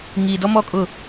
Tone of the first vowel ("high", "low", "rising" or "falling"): low